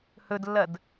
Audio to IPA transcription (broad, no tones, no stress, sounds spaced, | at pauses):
h ɵ d lː ɐ d